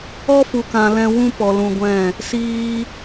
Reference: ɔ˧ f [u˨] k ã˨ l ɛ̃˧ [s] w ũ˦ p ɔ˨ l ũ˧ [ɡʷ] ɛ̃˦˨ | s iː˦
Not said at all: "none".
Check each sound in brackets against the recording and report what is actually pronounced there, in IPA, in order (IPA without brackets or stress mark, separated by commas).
u˨, none, ɡʷ